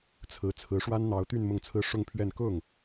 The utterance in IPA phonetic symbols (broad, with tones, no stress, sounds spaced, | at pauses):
t͡sʰ ɹ̩˧˥ t͡sʰ ɹ̩˧˥ ʂ w a˥ n n̪ ɑ˧˥ ʊ̯ t̪ y˥˧ n m ʊ˥˩ ŋ t͡sʰ ɹ̩˥ ʂ ʊ˥˧ ŋ pʰ ɥ ɛ˥˧ n k ʊ˥˩ ŋ